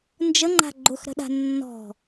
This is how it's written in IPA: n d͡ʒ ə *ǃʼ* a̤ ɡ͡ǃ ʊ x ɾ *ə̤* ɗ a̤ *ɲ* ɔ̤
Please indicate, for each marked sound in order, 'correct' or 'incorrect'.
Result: incorrect: ŋ͡ǃ, correct, incorrect: nː

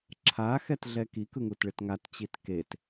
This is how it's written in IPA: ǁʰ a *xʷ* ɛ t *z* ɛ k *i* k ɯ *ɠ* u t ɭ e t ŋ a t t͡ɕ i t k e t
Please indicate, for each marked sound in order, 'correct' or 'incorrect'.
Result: incorrect: x, incorrect: ɮ, correct, incorrect: ŋ

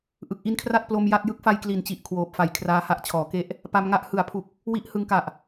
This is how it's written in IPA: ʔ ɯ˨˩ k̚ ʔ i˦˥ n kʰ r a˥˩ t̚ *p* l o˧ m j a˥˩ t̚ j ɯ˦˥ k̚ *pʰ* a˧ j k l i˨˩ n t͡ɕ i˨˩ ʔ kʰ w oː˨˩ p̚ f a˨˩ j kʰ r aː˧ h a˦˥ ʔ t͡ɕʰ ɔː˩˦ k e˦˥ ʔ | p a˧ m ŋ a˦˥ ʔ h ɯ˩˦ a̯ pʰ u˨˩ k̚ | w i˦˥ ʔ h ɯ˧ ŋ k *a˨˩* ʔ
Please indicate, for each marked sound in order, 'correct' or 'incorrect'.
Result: correct, incorrect: f, correct

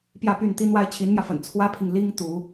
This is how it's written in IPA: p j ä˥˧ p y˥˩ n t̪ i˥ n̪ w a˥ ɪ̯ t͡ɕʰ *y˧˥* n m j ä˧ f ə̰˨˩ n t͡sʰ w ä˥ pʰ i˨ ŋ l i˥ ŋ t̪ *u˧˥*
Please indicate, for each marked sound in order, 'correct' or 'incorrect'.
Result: incorrect: i˧˥, correct

